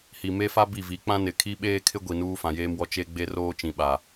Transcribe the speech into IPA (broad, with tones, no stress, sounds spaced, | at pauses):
h i˨ m e˦ f a˦ b i˦˨ v i˨˦ k͡p ã˦ n ɪ˨ kʰ i˦ ɓ eː˦ kʰ ɪ˦ ɡʷ i˨ n uː˦ f ã˨ j eː˦ m w ɔ˦ t͡ʃ e˦ ɡ͡b e˦ r oː˦ t͡ʃ ĩ˨ ɓ a˨